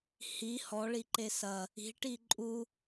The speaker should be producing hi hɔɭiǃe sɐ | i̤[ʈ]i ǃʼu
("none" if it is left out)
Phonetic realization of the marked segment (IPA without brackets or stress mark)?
ʈ